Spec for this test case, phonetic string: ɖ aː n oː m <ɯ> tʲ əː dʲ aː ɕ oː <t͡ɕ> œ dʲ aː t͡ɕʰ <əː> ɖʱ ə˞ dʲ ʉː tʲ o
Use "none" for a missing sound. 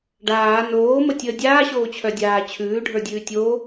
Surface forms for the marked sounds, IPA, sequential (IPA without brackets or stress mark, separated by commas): ə, t͡ɕʰ, ʉː